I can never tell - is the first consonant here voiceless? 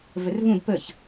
no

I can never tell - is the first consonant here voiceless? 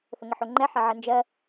yes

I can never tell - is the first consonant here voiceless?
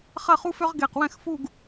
yes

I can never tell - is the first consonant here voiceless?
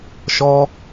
yes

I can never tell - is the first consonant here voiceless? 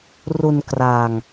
no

